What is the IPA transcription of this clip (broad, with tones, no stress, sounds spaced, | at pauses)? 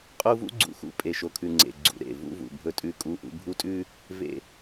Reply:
qʼ u˦ v ṵ˦ ɡ͡ǀ ṵ˨ x ṵ˨ pʼ e˨ ʃ o˨ kʰ ʉ˨ ŋ͡ǀ ḛ˨ ɡ͡ǀ ṵ˨ ɾ ḛ˦˨ v ṵ˦ v ṵ˨ bʱ ɵ˦ tʼ ʉ˦˨ kʼ u˦ ʔ ṵ˦ bʱ u˦ tʼ ʉ˦ | v ḛ˨